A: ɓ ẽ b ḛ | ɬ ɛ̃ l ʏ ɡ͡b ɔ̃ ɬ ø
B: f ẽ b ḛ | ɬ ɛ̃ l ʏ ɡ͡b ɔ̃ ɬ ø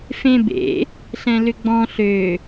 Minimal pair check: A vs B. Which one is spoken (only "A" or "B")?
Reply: B